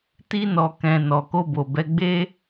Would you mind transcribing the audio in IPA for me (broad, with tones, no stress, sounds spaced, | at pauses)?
t i˧ n ɔ˨ k ɛ̃˨ n ɔ˨ k o˧ b o˨ b ɛ˧ ɡ͡b e˦